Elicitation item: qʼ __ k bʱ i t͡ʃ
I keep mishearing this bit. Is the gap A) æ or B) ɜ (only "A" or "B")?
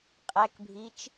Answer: A